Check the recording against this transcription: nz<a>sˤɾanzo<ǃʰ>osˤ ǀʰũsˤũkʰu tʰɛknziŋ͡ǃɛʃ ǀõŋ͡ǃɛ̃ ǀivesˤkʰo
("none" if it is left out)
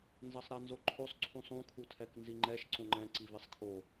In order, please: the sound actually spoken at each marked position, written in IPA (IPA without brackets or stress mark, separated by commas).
ʌ, ǃʰ